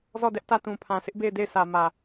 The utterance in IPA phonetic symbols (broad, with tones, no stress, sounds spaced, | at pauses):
z ɔ˦˨ d ɛ˦ ʔ t ä˦˨ t ũ˨ pʰ ã˨ sʰ ɪ˦ ʔ b e˦˨ ɪ̯ d e˦˨ ɪ̯ sʰ ä˨ m ä˨